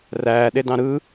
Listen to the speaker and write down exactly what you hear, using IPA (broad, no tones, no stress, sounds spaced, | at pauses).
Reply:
r æː ɗ e d ɑ̃ ɾ ɯ